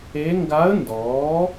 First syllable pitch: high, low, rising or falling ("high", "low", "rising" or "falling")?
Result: rising